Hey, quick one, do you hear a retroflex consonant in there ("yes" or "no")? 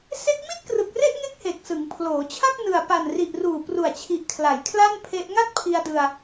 no